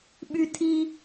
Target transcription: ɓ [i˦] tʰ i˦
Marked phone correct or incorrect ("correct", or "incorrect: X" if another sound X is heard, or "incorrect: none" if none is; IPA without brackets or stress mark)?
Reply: incorrect: y˦